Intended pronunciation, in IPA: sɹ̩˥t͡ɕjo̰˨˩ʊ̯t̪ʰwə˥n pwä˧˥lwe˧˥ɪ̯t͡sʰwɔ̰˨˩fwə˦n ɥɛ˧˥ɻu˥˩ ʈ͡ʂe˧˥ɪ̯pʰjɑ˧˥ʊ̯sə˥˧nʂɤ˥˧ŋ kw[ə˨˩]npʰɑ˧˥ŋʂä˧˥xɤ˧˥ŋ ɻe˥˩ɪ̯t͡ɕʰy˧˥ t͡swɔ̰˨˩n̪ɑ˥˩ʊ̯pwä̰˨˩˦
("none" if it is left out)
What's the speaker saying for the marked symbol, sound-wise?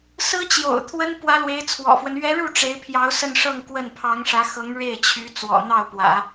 ə˥˩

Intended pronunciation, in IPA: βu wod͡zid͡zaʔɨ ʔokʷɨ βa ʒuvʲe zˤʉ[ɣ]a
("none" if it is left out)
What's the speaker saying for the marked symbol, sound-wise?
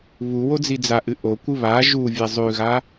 ɣ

